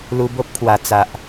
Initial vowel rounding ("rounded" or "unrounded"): rounded